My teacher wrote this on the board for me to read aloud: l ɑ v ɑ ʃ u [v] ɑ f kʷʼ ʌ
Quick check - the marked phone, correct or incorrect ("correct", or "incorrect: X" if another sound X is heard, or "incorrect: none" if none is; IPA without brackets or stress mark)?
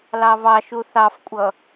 incorrect: θ